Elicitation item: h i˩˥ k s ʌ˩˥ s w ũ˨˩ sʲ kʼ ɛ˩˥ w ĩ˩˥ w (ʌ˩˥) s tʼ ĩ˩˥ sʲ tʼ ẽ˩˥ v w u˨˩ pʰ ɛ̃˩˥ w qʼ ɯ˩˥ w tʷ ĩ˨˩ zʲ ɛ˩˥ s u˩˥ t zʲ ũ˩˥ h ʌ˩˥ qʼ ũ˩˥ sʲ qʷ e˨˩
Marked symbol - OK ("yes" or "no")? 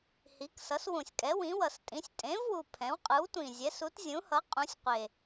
no